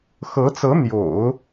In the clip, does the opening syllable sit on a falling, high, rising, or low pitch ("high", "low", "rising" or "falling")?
rising